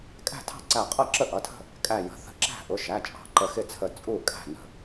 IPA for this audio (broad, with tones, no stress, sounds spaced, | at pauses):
kʼ æ̤˥˩ tʰ ɑ̤˥˩ ǀ æ˧˩ qʼ ʌ˥˩ ǁ ə˥˩ ʔ ʌ˩˧˩ tʰ ə̤˥˩ | kʼ æ˧˩ j ə̤˩˧˩ θ ə̤˧˩ ǁ æ̤˥˩ ʔ ʊ˩˧˩ ʃ æ˩˧˩ t͡ʃʼ ɑ̤˧˩ ǃ ə˧˩ x ɪ˥˩ t͡sʰ ə˧˩ t͡sʼ u˥˩ kʼ æ̤˥˩ n ə̤˧˩